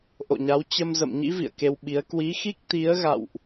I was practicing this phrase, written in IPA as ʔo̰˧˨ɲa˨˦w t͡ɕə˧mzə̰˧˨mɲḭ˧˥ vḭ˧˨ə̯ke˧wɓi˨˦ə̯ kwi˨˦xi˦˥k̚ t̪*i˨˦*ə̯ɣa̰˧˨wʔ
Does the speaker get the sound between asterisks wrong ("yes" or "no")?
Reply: no